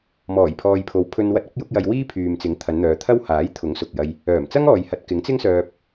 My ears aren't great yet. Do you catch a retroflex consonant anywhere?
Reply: no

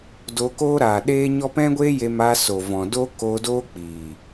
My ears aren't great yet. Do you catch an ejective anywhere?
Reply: no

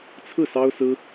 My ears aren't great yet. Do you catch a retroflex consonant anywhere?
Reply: no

